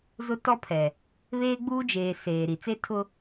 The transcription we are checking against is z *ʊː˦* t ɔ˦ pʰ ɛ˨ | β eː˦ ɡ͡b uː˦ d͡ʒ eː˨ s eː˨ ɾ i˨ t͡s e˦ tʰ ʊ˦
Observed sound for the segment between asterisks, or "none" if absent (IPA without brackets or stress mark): ʊ˦